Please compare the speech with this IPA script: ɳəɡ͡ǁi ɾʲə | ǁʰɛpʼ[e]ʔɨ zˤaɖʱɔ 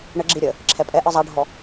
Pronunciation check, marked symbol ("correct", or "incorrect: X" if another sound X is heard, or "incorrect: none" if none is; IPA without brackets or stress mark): incorrect: ɛ